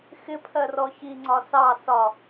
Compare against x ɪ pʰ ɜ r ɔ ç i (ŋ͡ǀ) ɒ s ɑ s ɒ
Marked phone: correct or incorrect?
correct